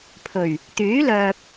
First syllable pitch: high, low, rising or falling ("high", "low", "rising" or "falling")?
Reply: low